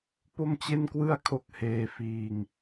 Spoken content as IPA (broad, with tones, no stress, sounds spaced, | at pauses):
p o˥˩ m t͡ɕ e˥˩ n k w ɯ˥˩ a̯ kʰ o˦˥ k̚ h eː˧ f iː˧ ŋ